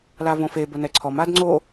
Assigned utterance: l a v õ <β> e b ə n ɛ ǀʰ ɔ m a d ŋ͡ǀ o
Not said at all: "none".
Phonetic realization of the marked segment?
f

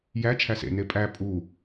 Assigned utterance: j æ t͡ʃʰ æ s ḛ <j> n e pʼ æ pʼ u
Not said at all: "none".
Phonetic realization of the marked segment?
none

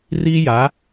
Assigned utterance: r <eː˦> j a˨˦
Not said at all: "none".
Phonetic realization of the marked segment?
iː˦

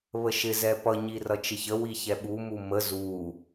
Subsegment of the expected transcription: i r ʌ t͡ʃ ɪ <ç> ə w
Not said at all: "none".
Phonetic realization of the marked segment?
ç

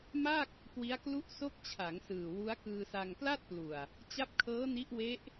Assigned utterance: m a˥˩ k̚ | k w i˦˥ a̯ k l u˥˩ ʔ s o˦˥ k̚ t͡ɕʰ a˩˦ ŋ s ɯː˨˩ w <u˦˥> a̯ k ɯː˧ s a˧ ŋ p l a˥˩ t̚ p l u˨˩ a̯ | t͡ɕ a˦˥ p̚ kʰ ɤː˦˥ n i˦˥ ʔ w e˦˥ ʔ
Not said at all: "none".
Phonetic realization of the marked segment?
u˦˥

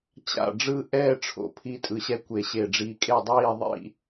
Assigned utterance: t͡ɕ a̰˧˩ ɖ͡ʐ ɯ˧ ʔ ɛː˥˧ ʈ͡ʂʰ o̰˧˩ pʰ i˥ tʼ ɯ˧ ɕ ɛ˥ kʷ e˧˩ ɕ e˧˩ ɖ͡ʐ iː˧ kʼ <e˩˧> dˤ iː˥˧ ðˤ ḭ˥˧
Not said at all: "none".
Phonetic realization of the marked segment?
e˥˧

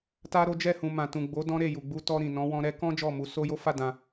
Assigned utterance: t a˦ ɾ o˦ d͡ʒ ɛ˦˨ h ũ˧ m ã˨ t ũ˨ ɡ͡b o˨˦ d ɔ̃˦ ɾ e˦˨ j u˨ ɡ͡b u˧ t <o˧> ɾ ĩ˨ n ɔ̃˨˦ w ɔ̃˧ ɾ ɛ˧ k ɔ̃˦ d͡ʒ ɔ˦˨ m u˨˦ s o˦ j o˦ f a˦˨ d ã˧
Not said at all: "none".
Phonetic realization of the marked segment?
ɔ˧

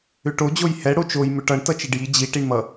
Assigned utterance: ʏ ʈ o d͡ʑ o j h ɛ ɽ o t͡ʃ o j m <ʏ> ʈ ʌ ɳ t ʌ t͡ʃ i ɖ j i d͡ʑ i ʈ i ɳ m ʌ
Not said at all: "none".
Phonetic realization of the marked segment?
ʏ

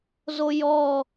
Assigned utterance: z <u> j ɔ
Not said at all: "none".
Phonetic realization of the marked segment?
o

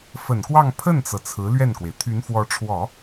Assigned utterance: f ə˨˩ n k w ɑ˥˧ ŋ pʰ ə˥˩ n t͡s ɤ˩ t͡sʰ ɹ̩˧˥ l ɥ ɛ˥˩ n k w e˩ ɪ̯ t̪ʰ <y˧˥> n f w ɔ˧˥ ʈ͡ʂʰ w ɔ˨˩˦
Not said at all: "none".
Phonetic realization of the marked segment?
y˧˥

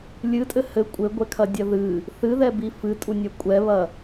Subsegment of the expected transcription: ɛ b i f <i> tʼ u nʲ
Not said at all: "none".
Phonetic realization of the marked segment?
ɨ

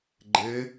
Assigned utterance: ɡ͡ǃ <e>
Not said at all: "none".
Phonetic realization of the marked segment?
e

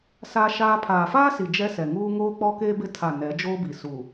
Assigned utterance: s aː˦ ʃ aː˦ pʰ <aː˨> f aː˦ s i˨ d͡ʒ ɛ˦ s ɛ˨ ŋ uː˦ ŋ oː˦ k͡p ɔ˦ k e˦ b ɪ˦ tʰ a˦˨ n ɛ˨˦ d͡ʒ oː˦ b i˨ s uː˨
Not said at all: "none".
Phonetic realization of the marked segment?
aː˨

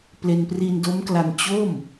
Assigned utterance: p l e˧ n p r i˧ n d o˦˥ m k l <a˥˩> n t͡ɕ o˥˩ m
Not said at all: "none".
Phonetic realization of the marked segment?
a˧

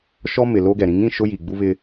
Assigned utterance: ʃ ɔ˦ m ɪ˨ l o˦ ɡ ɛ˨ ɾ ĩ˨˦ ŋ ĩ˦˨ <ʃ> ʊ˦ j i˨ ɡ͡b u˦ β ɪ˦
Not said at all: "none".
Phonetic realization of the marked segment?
ʃ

